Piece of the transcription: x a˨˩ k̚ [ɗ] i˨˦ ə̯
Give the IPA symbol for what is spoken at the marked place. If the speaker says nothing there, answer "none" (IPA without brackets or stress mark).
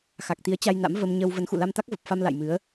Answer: t̪